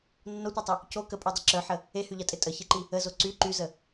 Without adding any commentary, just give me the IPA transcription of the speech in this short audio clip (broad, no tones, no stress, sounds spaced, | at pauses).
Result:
nː o tʷ i tˤ e | c o k ə pʼ y dˤ ɪ ǁ œ ħ ə | e h y ʎ ɐ tʼ ɪ tʼ ə ç e ǃ i | ə z o ǀ y ǃ y z ə